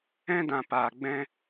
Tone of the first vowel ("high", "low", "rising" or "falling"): high